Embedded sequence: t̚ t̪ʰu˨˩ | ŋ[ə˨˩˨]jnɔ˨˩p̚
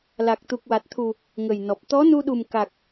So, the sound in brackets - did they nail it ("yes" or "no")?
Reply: no